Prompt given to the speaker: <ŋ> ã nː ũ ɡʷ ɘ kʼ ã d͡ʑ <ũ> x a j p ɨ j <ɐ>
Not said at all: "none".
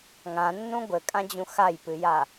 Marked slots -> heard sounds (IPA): ŋ, ũ, a

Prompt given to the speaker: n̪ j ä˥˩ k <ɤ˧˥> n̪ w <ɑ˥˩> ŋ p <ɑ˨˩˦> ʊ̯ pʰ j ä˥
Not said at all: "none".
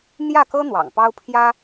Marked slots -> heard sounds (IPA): ɤ˥, ɑ̰˨˩, ɑ˥

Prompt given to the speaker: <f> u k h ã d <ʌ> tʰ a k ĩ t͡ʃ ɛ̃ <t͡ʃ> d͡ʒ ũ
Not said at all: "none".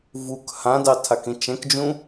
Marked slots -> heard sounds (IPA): v, ɑ, k

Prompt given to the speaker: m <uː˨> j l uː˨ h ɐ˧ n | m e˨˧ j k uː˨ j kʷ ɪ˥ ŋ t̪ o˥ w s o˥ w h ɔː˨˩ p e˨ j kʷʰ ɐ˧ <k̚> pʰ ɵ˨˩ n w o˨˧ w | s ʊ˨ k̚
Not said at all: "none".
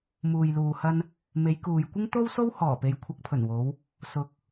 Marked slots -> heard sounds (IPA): uː˨, k̚

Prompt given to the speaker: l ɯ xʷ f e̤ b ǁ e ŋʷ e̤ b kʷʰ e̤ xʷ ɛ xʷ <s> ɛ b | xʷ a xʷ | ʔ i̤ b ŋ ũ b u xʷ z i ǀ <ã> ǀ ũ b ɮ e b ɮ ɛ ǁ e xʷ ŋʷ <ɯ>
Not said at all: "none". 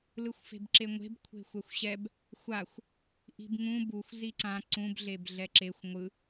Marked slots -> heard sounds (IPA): ɕ, ã, ɯ

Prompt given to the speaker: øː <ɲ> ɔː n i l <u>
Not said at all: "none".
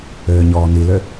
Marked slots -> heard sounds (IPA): ɲ, ø

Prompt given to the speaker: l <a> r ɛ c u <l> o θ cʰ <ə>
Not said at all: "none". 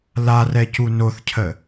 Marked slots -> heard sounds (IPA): a, n, ə

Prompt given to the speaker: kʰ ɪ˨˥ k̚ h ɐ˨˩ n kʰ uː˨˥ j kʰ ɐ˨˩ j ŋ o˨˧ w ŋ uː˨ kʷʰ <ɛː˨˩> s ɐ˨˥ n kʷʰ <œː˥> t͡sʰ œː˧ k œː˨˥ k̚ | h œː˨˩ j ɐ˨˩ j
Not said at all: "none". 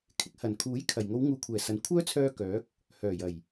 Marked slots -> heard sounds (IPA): ɛː˨˩, œː˥

